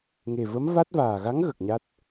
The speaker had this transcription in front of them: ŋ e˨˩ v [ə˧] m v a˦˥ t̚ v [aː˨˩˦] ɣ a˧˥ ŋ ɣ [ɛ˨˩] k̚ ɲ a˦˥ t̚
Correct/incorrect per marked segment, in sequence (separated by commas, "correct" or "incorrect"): incorrect, incorrect, incorrect